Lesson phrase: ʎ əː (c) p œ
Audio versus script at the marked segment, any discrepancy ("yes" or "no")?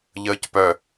no